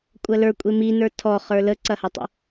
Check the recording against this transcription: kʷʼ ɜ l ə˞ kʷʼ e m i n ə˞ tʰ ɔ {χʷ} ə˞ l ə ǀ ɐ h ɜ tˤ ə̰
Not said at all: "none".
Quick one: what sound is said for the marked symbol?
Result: χ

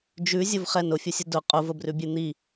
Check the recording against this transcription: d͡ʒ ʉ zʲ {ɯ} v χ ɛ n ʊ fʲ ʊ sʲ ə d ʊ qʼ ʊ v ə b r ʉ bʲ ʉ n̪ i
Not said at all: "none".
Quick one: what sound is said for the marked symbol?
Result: ʊ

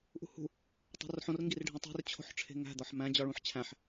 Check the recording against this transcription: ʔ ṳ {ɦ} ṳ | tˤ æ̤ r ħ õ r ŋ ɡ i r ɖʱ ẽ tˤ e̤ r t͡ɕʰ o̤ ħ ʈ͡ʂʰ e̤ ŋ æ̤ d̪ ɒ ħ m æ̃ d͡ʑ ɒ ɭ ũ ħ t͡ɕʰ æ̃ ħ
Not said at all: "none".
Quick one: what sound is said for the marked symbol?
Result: h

